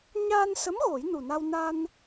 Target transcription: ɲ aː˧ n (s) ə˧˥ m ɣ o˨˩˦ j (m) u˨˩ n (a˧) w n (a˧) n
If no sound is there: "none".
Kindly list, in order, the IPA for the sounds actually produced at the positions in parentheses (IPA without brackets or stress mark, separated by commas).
s, n, a˧, a˧